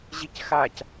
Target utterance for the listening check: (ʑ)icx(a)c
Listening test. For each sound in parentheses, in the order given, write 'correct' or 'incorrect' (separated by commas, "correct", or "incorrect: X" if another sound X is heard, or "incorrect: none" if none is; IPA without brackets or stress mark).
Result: correct, correct